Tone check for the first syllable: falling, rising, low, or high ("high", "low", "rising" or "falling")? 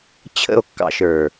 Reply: falling